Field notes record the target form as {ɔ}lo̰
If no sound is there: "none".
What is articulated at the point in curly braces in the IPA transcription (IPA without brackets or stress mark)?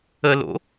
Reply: ə